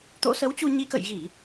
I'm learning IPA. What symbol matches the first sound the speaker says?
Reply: t̪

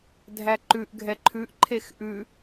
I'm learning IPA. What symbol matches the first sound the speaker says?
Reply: dʱ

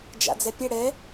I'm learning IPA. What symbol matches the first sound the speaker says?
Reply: d͡ʒ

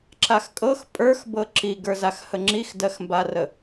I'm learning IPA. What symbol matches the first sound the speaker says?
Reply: ǁ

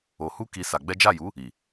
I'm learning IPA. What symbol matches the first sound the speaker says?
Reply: o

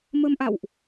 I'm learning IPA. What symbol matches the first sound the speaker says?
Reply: m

